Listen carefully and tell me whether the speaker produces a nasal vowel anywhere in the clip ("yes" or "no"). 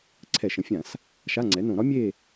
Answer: yes